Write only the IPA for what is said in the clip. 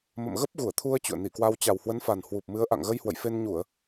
m ə̰˧˨ m ɣ ə˦˥ p̚ ɣ u˧˩ ə̯ t̪ʰ u˧ ə̯ t͡ɕ ṵ˧˨ ə̯ n i˧˩ k w a˧ w t͡ɕ a˨˩ w h w ə˨˦ n f a˨˩ n h w u˨˩ p̚ m ɨ˨˦ ə̯ ʔ a̰˧˨ ŋ ɣ ə˧ j h w ə̰˧˨ j f e˧ n ɲ u˧˩˨ ə̯

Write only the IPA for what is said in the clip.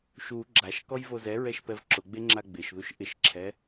ʃ u ɡ͡ǁ a ʃ k ɔ j v o z ɛ ɹ ɛ ʃ p ɛ v ǁ ʊ ɡ͡b e ŋ͡ǁ a ɡ͡b ɪ ʃ ð u ʃ ʔ ɪ ʃ ǁʰ ɛ

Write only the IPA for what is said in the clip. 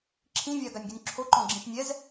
ǁʰ ĩ vʲ a ɡ a nʲ ɡ y nʲ ǁʰ o ǃ ɔ̃ ɡ͡ǁ ĩ ʃ nʲ ɛ z

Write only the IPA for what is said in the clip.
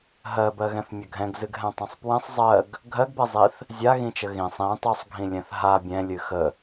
ɦ ɜ b ɜ ɣ ɛ̃ θ mʲ ə ɡʱ ɛ̃ ɡ z ɨ ɡ ɦ ɛ̃ tˤ ɛ̃ sˤ p w ɛ̃ sˤ zˤ ɜ ɡ | ɡʱ ɜ ɡ b ɛ zˤ i θ | zʲ a ɣ ĩ t͡ʃ ə ɣ ĩ sˤ ĩ tˤ o sˤ ɡʱ ĩ lʲ ɛ̃ θ ɦ a bʲ ɛ̃ lʲ ɨ x ə

